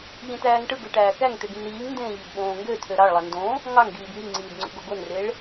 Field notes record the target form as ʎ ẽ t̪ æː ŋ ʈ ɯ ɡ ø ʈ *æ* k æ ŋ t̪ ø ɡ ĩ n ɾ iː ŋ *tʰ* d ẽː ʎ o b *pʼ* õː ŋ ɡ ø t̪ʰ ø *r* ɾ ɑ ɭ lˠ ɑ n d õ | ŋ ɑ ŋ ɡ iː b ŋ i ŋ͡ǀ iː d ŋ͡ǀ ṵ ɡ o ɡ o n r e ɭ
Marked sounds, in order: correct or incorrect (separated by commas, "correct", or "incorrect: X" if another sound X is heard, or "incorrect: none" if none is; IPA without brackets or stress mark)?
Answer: incorrect: æː, incorrect: n, incorrect: ɓ, incorrect: none